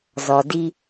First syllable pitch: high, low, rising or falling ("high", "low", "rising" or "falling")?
low